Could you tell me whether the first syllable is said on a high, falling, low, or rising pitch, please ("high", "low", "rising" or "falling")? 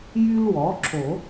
high